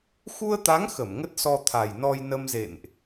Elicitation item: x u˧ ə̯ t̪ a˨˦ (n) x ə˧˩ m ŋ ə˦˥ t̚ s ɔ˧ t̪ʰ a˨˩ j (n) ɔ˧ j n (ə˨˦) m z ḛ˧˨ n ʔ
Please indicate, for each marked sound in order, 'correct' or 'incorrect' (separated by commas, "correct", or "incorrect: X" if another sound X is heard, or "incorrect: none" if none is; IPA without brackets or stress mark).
incorrect: ŋ, correct, incorrect: ə˧